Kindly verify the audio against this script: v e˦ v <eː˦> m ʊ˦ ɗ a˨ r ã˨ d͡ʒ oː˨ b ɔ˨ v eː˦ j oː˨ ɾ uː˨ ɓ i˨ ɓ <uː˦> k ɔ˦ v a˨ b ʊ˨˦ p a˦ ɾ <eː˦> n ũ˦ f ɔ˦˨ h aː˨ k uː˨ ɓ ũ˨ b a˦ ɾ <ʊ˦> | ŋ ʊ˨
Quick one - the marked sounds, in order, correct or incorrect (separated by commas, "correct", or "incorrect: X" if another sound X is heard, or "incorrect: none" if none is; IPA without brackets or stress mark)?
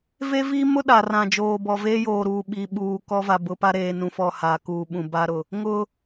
incorrect: iː˦, incorrect: uː˨, incorrect: eː˨, incorrect: ʊ˨